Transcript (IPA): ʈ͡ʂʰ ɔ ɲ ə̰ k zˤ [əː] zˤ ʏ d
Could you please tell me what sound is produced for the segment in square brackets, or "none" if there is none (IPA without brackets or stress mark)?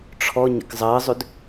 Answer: əː